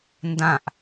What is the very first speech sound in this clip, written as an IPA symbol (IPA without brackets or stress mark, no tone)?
n